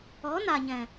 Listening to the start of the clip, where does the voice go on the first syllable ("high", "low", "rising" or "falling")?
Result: rising